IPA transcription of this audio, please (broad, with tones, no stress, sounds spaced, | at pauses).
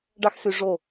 ɖ ɑ˥ x s y˧ ʐ o˥˩